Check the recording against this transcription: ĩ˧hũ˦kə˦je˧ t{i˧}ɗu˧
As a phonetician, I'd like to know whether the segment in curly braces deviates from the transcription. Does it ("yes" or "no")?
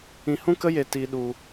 no